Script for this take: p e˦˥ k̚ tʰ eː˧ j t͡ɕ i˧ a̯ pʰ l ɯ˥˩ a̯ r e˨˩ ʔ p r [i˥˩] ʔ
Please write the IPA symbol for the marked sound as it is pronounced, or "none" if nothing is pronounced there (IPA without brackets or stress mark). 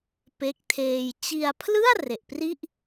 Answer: i˥˩